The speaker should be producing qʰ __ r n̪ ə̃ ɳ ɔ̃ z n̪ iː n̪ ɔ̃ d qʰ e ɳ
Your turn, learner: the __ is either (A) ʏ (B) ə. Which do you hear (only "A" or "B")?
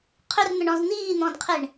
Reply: A